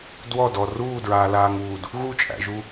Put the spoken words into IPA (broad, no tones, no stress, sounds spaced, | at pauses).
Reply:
d w ɔ d ɔ r uː d ɹ aː l aː ŋ uː d | ɣ u t͡ʃʼ æ̰ ʒ u